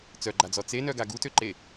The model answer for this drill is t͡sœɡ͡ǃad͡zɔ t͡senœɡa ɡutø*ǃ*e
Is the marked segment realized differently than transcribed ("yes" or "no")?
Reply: no